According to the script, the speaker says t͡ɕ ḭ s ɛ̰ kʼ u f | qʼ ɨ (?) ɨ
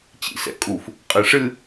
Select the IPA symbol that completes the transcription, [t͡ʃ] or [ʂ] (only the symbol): ʂ